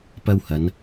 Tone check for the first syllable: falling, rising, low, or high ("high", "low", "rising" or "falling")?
high